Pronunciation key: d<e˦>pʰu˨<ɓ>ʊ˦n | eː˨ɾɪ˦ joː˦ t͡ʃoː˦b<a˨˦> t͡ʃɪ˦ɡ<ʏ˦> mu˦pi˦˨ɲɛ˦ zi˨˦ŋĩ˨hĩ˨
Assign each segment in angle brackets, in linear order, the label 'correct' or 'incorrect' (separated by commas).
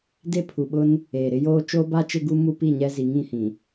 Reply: correct, correct, incorrect, incorrect